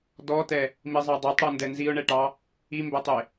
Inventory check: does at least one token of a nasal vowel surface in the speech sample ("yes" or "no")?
no